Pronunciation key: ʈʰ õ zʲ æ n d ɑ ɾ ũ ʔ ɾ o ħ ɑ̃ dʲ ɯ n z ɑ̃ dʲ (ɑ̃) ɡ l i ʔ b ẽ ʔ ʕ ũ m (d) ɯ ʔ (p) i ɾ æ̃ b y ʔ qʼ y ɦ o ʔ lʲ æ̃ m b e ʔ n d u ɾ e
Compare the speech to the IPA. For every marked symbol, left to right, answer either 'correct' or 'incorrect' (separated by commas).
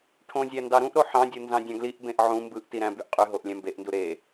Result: correct, incorrect, incorrect